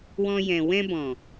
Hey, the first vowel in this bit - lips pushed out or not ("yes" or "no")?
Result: yes